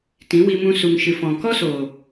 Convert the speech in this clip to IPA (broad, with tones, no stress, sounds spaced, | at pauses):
t ĩ˨˦ w i˧ m ũ˧ s u˨ ŋ ʃ ɨ˨ f ɔ̃˨ k ɔ˦ s oː˨